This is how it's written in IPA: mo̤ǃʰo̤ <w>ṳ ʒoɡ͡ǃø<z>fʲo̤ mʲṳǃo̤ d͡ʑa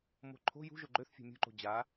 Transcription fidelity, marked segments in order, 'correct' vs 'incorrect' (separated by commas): incorrect, incorrect